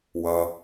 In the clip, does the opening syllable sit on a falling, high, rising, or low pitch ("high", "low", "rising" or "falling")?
low